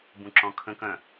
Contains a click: yes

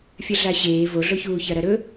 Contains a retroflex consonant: no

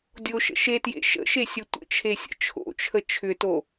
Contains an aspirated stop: yes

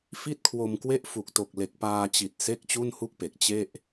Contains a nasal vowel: no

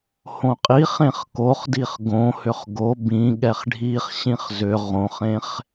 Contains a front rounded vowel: yes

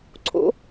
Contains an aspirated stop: yes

